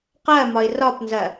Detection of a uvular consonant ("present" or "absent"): present